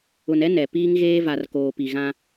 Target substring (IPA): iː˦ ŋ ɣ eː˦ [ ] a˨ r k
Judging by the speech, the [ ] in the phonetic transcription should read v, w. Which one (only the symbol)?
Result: v